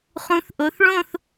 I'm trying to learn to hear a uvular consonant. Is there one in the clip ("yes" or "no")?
yes